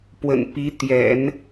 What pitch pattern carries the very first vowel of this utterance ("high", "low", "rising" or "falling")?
low